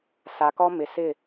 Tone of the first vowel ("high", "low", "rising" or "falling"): low